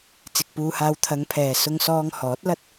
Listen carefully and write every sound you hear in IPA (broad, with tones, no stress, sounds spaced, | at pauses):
t͡s ɪ˨ k̚ p uː˧ h aː˧ w t̪ʰ ɐ˨˧ ŋ pʰ ɛː˨ s ʊ˧ ŋ s ɔː˧ ŋ h ɔː˨˥ t̚ l ɐ˥ t̚